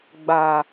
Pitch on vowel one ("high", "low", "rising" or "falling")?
low